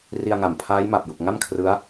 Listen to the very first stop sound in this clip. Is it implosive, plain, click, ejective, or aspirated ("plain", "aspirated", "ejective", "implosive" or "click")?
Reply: aspirated